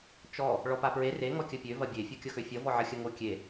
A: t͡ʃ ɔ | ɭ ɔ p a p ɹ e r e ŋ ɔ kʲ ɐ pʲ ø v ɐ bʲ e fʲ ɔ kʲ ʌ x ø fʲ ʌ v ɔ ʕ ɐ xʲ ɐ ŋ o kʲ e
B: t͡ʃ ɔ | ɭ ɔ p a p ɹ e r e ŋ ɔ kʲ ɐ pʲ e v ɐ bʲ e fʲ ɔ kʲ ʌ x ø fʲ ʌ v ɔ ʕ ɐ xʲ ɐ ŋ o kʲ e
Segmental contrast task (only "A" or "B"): A